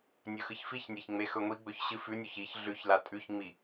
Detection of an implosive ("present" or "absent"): absent